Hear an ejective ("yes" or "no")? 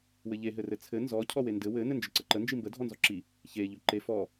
no